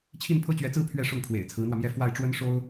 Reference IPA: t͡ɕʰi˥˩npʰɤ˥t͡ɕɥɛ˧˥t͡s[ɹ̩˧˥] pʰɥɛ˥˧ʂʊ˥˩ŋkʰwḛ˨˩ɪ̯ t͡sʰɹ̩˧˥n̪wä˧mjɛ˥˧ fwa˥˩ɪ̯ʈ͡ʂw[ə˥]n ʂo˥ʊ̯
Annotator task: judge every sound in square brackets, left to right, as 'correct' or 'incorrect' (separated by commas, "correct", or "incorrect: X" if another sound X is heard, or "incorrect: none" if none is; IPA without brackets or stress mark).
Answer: incorrect: ɹ̩˥, correct